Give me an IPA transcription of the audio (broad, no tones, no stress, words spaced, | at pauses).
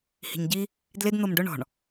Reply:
hi̤ɲɟi | dlɪd n̪omɖʊ ɳɔ̤ɳ